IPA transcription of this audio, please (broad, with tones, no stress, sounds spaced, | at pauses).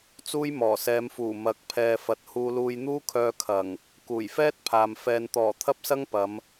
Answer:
t͡s uː˥ j m ɔː˨˩ s ɛː˨˧ m f uː˨˩ m ɐ˨˥ k̚ pʰ ɛː˨ f ɐ˨ t̚ h uː˧ l uː˧ j n̪ uː˥ kʰ œː˧ kʰ ɐ˨˩ ŋ | k uː˨˩ j f ɛː˥ t̚ pʰ aː˨ m f ɛː˨ n t̪ ɔː˨˩ t̪ʰ ɐ˥ p̚ s ɐ˥ ŋ p ɐ˨˧ m